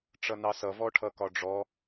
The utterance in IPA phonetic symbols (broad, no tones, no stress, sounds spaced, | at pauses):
ʈ͡ʂ ʌ n ɑ s ʌ v ɔ ʈʰ ʌ k ɒ ɖ͡ʐ ɔ